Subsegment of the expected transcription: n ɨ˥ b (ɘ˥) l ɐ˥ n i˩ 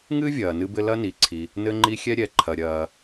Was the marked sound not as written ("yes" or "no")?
no